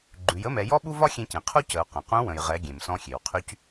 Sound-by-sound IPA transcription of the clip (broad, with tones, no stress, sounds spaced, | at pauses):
ɡ͡ǃ ʉ˩˧ j ə˧˥ m ɛ˩˧ j ɔ˥ ɓ u˥ v ɒ˥ xʲ ẽ˧ c ẽ˩ qʰ u˥ c ə˩˧ u̯ q ə̃˩ q ũ˧˥ w ə̃˩ j ʁ ɛ˩˧ ɡʲ ẽ˩ m s ɔ̃˧ xʲ e˩ w qʰ y˧ c